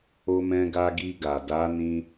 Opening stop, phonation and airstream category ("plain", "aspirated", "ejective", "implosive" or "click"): plain